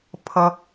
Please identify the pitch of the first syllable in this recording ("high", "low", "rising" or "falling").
low